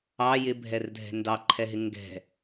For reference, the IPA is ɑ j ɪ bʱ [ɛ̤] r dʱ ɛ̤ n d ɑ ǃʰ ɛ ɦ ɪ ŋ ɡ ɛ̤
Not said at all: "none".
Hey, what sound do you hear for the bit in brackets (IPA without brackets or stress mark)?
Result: ɛ